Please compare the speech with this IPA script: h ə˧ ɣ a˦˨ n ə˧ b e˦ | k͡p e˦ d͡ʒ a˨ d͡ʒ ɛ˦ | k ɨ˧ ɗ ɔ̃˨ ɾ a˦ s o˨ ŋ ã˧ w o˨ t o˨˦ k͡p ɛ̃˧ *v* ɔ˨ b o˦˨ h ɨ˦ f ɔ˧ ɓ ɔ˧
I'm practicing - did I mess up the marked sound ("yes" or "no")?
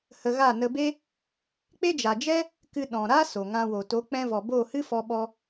no